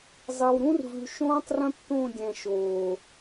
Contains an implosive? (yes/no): no